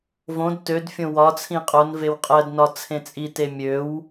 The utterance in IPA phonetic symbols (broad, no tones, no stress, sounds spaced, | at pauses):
v õ d t ø d fʲ õ w ɒ t͡sʰ ĩ qʼ o n v e w qʼ ɜ d n ɒ t͡sʰ ẽ t͡sʼ i t e mʲ ø w